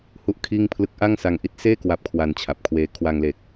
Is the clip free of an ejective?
yes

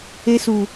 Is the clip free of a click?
yes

